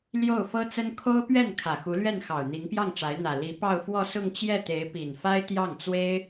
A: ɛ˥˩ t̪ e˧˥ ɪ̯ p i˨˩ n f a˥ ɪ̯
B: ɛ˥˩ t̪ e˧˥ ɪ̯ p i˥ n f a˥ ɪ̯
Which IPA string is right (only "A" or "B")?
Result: A